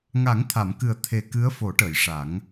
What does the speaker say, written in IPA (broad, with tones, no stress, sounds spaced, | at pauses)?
ŋ a˨˩˦ ŋ t̪ʰ a˨˩˨ m k ɨ˨˩ ə̯ t̪ʰ e˨˩ k ɨ˧˥ ə̯ f o˨˩˦ ʈ əː˨˩˨ j ʂ a˨˩˦ ŋ